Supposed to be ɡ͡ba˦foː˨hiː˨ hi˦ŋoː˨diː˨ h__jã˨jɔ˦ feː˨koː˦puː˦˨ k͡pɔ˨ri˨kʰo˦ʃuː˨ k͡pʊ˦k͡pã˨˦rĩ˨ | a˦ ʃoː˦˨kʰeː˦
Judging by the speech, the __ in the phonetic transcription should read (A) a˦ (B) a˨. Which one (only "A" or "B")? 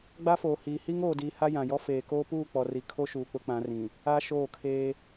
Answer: A